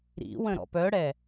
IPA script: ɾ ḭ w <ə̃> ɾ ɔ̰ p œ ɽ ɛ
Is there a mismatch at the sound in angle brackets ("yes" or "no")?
no